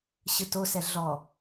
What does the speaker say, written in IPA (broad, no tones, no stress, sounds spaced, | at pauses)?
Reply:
ɕ ɯ t o s ɛ ɮ ɔ